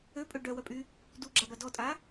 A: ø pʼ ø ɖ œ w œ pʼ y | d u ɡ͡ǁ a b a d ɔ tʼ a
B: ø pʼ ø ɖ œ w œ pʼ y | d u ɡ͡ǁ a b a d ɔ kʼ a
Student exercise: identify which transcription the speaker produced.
A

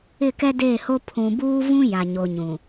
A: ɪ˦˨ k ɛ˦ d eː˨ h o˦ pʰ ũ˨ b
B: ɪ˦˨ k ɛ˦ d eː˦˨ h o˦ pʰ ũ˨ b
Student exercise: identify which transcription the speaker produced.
B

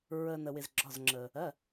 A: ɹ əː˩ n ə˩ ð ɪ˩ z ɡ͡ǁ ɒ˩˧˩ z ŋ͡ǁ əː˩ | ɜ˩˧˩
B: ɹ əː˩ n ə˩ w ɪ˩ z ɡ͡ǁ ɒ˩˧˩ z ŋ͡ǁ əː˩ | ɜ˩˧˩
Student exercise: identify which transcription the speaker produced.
B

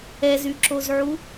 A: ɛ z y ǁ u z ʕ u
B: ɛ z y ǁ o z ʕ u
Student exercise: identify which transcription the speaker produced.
B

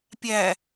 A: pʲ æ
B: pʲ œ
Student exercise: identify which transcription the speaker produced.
A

